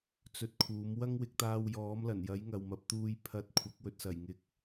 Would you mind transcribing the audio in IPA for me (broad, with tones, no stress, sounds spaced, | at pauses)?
t͡s ɵ˧ t̚ kʰ uː˨˥ m w ɐ˥ ŋ w ɪ˨˥ k̚ t̪ aː˧ w j ɔː˨˥ m l ɐ˨˩ n j ɐ˨˥ j ŋ ɐ˨ w m ɐ˨ p̚ t̪ uː˧ j pʰ ɐ˧ t̚ kʷʰ ɐ˨˥ k̚ w ɵ˨ t̚ s ɐ˨˩ j ŋ ɪ˨˥ k̚